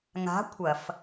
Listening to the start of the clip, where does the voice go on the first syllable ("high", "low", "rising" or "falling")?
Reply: rising